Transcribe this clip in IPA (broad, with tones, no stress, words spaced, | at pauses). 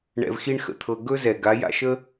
ɳɛ̰˧vxi˦ɳxə̰˧t̪ʰɤ˧ ɡɵ˦zɛ˨ ɡa˨˦ja̰˧ʃə˦